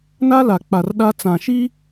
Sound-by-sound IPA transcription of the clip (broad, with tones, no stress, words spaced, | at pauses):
na˦la˨k͡pa˨r ɗa˦ t͡sã˨ʃi˦